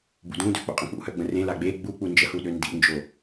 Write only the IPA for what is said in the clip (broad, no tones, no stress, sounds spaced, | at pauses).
b ṵ d ũ d ø k͡p o̰ qʼ ə̃ k͡p ṵ h œ ɡ͡b ə̃ r ẽ l a ɡ͡b e ɡ͡b u k͡p u n d͡ʒ ə h u ɗ ø n d ḭ n d͡ʒ o